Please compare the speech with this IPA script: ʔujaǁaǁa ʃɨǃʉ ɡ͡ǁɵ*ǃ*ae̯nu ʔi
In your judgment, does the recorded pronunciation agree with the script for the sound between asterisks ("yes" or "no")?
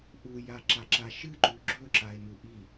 no